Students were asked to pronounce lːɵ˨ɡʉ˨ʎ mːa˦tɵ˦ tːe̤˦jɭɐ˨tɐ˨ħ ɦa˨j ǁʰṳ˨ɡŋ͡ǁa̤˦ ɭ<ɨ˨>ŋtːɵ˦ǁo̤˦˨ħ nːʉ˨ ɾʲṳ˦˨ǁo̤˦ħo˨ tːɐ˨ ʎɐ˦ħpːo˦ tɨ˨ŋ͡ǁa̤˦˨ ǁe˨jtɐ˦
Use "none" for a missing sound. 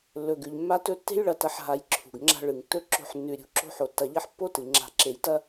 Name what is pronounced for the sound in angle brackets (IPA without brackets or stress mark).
ɨ˨